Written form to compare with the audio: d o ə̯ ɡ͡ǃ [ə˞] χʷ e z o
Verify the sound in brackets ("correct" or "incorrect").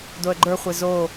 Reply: correct